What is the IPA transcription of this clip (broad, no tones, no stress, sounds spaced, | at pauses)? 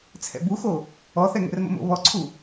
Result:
t͡sʰ ɛ̰ b u x o | ɔ θ ɛ ŋ ɛ̰ r m ə̰ m o̰ β ɔ ǀʰ u